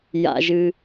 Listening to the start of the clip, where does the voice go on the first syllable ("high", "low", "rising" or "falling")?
low